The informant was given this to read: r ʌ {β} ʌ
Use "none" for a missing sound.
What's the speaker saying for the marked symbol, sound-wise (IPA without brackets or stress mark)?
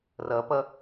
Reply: p